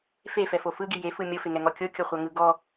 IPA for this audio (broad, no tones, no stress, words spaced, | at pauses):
fefɛfo fɯɡi jefɯ mʲofeŋɛŋɔ kʲokʲoχʷaŋɯ ɡɔ